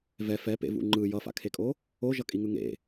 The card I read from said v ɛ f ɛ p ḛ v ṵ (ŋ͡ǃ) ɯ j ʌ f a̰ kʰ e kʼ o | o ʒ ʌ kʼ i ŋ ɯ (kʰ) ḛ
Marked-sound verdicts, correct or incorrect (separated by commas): correct, incorrect